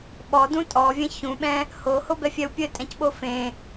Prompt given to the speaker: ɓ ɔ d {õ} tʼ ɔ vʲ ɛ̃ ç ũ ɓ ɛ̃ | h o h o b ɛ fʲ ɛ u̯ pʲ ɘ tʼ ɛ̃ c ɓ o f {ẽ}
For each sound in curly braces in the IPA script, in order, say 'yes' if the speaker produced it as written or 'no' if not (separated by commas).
no, yes